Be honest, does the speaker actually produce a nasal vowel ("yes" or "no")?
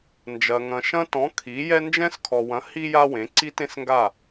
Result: yes